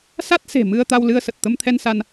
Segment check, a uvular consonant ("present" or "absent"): absent